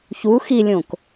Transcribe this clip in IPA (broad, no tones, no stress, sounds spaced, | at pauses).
ç u x i lʲ õ k